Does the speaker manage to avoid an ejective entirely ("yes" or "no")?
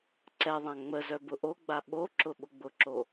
yes